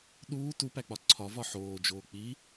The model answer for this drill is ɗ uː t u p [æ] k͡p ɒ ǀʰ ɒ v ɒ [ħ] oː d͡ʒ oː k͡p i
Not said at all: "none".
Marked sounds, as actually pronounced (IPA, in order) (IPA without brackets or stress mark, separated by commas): æ, ħ